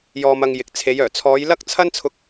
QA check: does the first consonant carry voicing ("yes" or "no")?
yes